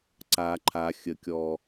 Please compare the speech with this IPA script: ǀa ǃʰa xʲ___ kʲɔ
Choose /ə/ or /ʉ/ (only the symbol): ə